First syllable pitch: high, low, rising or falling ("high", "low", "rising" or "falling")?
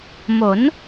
rising